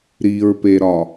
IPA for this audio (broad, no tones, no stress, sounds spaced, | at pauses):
ɾ i ɹ p e ɾ ɒ